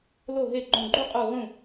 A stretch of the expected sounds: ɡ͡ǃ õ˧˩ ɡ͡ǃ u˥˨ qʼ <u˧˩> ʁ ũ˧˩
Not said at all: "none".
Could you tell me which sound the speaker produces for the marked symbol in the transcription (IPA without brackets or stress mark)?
u˧˩